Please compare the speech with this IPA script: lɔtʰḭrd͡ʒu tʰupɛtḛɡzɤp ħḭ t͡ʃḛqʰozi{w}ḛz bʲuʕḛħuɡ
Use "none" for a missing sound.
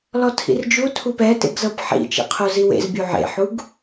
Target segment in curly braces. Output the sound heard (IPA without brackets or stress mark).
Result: w